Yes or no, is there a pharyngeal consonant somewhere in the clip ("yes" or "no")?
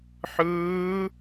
yes